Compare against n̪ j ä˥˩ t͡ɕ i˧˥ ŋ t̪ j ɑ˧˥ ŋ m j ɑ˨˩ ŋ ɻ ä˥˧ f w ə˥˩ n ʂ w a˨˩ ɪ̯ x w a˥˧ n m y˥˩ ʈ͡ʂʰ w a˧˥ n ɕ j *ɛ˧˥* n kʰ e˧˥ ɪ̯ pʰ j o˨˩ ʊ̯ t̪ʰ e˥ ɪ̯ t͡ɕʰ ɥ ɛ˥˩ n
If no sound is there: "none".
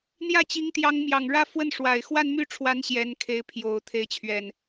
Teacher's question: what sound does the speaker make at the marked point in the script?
ɛ˧˥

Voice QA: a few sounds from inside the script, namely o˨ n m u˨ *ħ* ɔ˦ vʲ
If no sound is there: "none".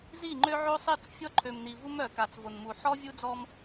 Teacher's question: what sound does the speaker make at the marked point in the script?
ħ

